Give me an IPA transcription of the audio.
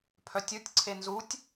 pʰ œ tʲ u tʲ ǀʰ e n z u tʲ

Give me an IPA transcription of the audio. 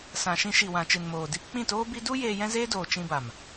s ã˨ ʃ ĩ˧ ʃ i˨ w ã˨ t͡ʃ ɨ˨ n m oː˨ d i˧ p k͡p ĩ˦˨ t oː˦ b i˦ d u˦ j eː˧ j ɛ̃˦ z eː˦ d oː˨ t͡ʃ ĩ˧ b a˨ m

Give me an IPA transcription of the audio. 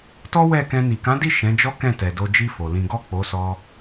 t ɔ˦ w ɛ˦˨ k ɛ̃˧ n i˨ k ã˨˦ d i˦˨ ʃ ɛ̃˨˦ d͡ʒ ɔ˦ k ɛ̃˦˨ t ɛ˨ d o˧ d͡ʒ i˦ f o˧ l ĩ˦ ɡ ɔ˦˨ k͡p o˨˦ s ɔ˧

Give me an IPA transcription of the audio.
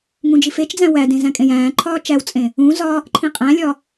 ŋ ũ d͡ʒ i f e t͡ʃ d͡z æ̃ w æ d ẽ z æ̃ kʼ ẽ j æ̃ː ǃʰ ɒː t͡ʃ æ w t͡sʼ ẽ | ũ z ɒ | ǃʰ ĩ qʼ æ̃ lʲ ɒ

